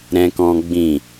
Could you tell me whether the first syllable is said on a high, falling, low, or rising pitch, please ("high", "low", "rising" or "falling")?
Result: high